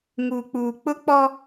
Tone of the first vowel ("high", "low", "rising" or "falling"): low